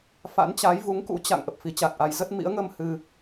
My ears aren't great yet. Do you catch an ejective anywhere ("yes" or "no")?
no